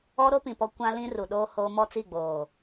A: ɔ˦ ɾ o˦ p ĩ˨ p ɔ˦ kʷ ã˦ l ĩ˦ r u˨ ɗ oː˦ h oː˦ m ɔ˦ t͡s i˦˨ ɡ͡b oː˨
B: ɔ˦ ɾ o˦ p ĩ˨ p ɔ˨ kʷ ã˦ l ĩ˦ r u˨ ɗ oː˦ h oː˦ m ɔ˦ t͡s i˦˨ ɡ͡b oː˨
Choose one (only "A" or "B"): A